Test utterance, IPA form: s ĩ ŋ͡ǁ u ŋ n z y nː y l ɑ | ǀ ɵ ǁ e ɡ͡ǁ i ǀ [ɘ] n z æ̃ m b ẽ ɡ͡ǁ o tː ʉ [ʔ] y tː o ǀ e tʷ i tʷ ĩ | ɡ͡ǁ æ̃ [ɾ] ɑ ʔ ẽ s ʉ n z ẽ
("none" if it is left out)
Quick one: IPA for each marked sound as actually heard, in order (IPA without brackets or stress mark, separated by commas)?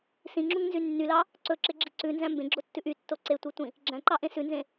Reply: ʉ, ʔ, ǃ